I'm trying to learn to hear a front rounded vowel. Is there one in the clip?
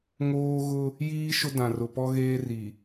no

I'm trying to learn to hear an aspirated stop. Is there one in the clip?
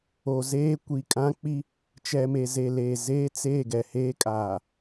no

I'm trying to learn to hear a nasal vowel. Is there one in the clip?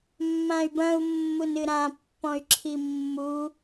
yes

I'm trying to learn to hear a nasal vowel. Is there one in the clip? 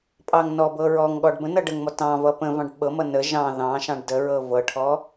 yes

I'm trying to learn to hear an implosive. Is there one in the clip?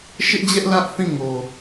no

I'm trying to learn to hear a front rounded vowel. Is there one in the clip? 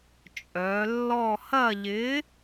yes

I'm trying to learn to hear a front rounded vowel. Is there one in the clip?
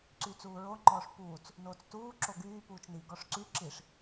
yes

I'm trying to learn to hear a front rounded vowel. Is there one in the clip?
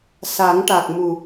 no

